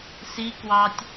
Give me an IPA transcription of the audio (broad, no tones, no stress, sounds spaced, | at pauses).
s i k w ɑ tʲ